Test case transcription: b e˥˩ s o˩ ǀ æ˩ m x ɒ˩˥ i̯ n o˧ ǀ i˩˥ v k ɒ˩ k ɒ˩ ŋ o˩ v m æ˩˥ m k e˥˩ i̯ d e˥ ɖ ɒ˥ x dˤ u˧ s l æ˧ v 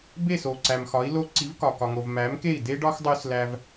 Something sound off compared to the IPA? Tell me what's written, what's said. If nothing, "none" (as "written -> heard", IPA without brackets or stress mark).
n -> l